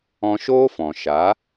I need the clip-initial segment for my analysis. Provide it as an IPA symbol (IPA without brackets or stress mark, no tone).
ɔ̃